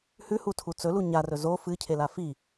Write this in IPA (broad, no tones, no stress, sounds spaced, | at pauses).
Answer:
h ʉ h u tʰ u t͡s ɵ l u ɲ a r ɵ z o f ɨ cʰ e l a f i